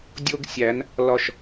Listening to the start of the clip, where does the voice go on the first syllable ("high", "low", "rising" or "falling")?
high